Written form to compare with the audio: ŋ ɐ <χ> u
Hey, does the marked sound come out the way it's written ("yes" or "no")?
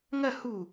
no